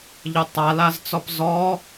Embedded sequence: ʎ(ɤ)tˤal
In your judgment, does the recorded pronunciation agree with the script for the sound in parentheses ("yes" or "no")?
yes